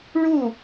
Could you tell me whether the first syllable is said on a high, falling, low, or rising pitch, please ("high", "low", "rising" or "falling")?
falling